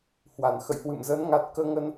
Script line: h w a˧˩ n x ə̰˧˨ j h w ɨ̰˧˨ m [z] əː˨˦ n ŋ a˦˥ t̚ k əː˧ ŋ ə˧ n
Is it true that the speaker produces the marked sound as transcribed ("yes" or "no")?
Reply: yes